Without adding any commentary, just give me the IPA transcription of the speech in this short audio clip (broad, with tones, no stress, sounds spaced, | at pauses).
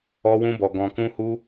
ɔ˦ w ũ˦ b ɔ˧ ɡ ɔ̃˧ k ũ˦ h u˦